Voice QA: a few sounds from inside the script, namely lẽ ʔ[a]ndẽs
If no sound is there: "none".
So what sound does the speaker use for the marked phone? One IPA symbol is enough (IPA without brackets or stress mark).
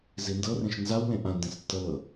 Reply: ã